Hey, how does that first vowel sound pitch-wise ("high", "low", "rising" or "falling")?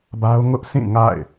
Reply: high